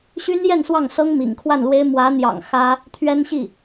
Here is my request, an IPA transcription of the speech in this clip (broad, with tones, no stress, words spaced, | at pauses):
ɕy˥njɛ˥˧n swɑ˥˩ŋsɤ˥ŋ mḭ˨˩ŋkʰwa˥˩nlwe˥ɪ̯ mwä˧˥n̪jɑ̰˨˩ŋ xä˥ | t̪ʰɥɛ˥nɕi˥˩